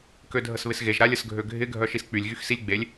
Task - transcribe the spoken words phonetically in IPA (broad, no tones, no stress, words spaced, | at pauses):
kødʱəsβɪsɣeʒ ɾalʲəsɡʱøɡʱɪ ɡʱœʃisk͡pylʲ ɣyxsilʲɡ͡belʲ